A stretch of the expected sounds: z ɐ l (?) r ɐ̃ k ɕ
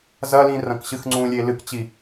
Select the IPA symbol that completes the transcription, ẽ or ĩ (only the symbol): ĩ